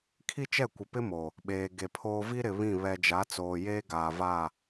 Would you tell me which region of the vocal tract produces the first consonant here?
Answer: velum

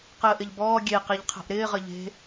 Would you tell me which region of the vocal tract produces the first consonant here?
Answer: uvula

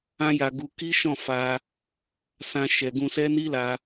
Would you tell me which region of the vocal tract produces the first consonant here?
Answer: palate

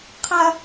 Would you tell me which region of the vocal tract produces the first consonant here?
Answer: uvula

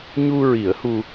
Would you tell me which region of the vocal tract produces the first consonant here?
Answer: palate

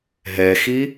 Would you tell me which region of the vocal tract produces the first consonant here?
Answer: throat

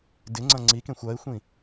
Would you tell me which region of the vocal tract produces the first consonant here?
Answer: tongue tip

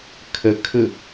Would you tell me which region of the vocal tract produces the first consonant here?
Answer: velum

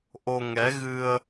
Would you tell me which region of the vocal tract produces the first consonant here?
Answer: throat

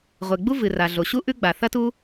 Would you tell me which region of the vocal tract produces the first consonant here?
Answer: uvula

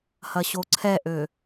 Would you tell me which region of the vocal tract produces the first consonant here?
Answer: throat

